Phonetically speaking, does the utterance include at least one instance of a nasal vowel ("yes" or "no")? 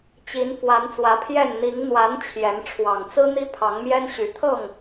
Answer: no